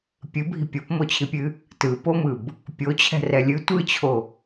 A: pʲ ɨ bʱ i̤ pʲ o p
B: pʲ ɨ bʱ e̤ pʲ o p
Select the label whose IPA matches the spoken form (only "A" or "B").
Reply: A